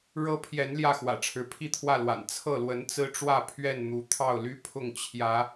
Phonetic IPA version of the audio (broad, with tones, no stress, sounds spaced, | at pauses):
ɻ ɤ˦ pʰ j ɛ˨˦ n l j ä˥˨ x w ä̰˨˩ ʈ͡ʂʰ ɻ̩˨˦ pʰ i˥˨ t̪ʰ w ä˥˨ l w a̰˨˩ n t͡sʰ ɤ˥˨ l w ə˨˦ n t͡s ɹ̩˦ ʈ͡ʂ w ä˥˨ pʰ ɥ ɛ˥˨ n n̪ u˨˦ t̪ʰ ɑ˥˨ ʊ̯ l y˦ pʰ ʊ˥˨ ŋ t͡ɕʰ j ä˨˦